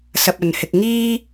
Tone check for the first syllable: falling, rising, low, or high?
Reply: low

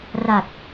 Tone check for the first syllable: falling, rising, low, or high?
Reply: low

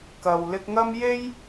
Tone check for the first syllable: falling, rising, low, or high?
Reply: low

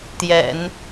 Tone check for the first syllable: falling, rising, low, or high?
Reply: low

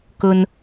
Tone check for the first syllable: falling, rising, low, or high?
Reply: low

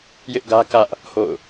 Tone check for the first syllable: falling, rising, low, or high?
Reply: high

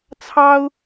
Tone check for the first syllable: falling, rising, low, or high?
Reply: high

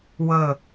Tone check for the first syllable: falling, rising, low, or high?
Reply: falling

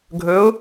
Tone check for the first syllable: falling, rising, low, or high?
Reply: rising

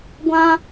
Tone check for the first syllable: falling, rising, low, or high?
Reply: high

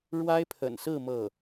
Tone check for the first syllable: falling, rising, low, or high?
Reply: high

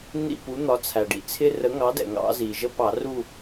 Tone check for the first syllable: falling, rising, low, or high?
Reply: falling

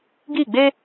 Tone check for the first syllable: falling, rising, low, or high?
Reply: falling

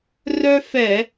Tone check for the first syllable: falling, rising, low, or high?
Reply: high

